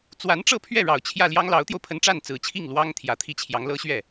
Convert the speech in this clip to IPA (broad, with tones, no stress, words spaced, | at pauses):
t͡swa˧˥nʈ͡ʂɤ˥˧pʰɥɛ˥˩ ɻɑ˨˩ʊ̯t͡ɕʰjä˥˩ljɑ˥ŋ lɑ˧˥ʊ̯t̪jo˧ʊ̯pʰə˧˥n ʈ͡ʂa˥˩nt͡sɹ̩˨˩t͡ɕʰi˥˩ŋ lwɑ˥ŋ t̪ʰjä˧˥t̪ʰi˥˩t͡ɕʰjɑ˧˥ŋ lɤ˥ɕɥɛ˥˩